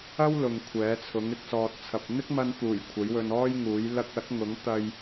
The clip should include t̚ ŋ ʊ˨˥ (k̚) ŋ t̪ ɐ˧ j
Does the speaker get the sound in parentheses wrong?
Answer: yes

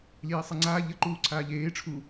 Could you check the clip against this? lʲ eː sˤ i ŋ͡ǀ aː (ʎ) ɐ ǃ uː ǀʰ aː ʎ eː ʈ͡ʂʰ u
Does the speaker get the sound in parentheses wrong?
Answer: no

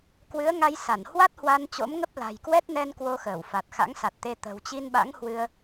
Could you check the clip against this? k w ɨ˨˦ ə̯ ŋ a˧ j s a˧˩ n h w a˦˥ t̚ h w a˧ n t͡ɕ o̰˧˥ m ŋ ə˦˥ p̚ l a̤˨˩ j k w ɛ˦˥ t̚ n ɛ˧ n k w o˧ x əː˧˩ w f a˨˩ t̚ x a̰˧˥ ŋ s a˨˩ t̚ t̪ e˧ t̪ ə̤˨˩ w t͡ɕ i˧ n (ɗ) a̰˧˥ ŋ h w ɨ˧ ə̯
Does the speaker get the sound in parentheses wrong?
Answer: yes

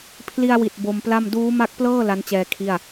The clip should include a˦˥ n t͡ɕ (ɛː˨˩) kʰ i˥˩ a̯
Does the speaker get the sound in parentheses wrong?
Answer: yes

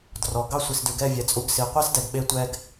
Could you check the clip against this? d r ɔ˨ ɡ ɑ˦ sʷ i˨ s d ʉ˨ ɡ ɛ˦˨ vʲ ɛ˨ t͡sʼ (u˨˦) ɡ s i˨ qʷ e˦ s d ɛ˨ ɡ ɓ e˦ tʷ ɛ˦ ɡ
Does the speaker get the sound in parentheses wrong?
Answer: no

